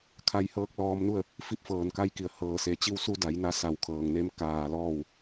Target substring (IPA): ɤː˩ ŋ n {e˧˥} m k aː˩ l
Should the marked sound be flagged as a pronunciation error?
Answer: no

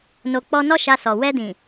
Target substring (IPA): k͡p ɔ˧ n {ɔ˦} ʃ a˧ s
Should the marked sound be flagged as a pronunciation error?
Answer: no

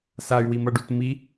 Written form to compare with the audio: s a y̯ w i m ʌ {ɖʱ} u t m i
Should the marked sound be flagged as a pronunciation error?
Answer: yes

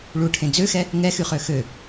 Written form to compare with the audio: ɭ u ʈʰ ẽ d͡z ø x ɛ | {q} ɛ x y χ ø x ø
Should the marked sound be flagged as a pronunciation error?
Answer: yes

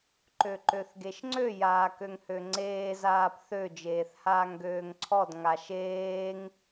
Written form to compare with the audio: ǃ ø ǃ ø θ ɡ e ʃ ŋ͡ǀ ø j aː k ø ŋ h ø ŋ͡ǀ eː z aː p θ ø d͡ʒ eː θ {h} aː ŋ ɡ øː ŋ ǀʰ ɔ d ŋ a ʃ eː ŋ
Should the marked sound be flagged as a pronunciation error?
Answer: no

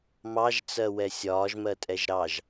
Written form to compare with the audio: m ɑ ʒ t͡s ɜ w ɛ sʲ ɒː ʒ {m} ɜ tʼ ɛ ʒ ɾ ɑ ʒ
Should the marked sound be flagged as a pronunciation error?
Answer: no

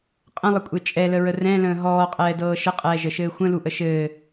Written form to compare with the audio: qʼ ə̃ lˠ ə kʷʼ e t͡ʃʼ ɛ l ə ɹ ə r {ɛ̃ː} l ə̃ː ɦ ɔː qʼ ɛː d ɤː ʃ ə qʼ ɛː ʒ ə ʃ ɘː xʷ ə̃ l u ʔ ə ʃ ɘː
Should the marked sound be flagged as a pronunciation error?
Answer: yes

